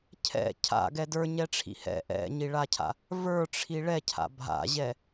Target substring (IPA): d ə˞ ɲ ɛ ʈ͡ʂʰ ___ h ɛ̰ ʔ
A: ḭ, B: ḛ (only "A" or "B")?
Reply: A